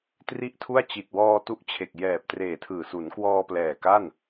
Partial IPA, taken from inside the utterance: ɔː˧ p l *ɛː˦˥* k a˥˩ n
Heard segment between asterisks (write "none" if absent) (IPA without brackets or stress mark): ɛː˨˩